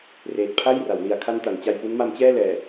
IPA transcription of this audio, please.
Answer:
r eː˨˩ t̚ pʰ a˥˩ j r a˩˦ w l i˨˩ a̯ kʰ a˧ n t a˩˦ n t͡ɕ a˧ j p u˦˥ n m a˦˥ m t͡ɕ ɛː˥˩ l ɛː˨˩

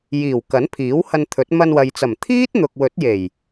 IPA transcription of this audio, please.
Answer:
j iː˨˩ w k ɐ˨˥ n pʰ iː˨˥ w h ɐ˧ n t̪ʰ ɵ˨˥ t̚ m ɐ˧ n w ɐ˨ j t͡s ɐ˨˩ m t̪ʰ iː˥ t̚ n̪ ʊ˨ k̚ w ɵ˨˥ t̚ j e˨˩ j

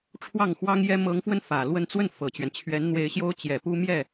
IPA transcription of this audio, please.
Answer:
ʈ͡ʂʰ w ɑ˥˩ ŋ x w ɑ˥ ŋ j ɛ˥ m ɤ˧˥ ŋ f w ə˧ n f ä˨˩ l w ə˥˧ n t͡s w ə˥˩ n f ɤ˨˩ t͡ɕ ɥ ɛ˦ n t͡ɕʰ ɥ ɛ˧˥ n n̪ w e˧˥ ɪ̯ ɕ j o˥ ʊ̯ t͡ɕ j ɛ˨˩ p u˥ m j ɛ˥˩

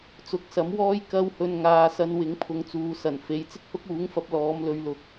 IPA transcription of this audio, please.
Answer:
t͡s ʊ˨˥ k̚ s ɐ˨˥ m w ɔː˥ j k ɐ˥ w h ɵ˧ n ŋ aː˧ s ɐ˧ n w ɪ˨˥ ŋ pʰ ʊ˨ ŋ t͡s uː˨ s ɐ˨˩ n f e˨˥ j t͡s ɪ˥ k̚ h ʊ˥ k̚ uː˨˥ ŋ f ɐ˧ p̚ l ɔː˨˧ m l ɵ˨˧ ɥ l ʊ˨˥ k̚

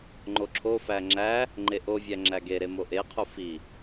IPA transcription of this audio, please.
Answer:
ŋ͡ǃ o ǁʰ o f æ ŋ͡ǁ æ | ŋ͡ǃ e ʔ o vʲ æ ŋ͡ǁ æ ɡ e ɾ e m o ʔ e qʰ u f i

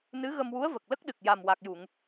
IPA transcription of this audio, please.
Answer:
n ɨ˧˥ ɣ ə˧ m w u˧˥ ə̯ v ə˨˩ k̚ l ə˦˥ k̚ ɗ ɨ˨˩ k̚ j a˨˩ m w a˨˩ k̚ j u˨˩˨ ŋ

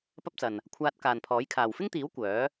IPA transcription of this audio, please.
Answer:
p ɐ˥ p̚ t͡s ɐ˨ n | kʷʰ aː˧ t̚ k aː˨ n pʰ ɔː˨˥ j kʰ aː˨ w f ɪ˥ ŋ t̪ iː˨˥ w kʷ œː˨˥

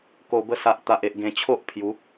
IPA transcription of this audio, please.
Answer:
k o˨˩ b ə˧ s a˨ ʔ t̪ a˨ ʔ e˨ ʔ ɡ ẽ˨˩ t͡ɕʰ o˦ ʔ pʰ j u˨˦

